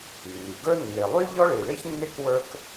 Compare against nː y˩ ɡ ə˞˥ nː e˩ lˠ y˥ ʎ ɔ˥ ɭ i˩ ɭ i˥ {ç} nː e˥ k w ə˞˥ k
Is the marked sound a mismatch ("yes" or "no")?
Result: no